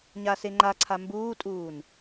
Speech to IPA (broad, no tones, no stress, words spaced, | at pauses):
ɲaseŋ͡ǃaǀʰa mbuːtʼuːn